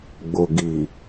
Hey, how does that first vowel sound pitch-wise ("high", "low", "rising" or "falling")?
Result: low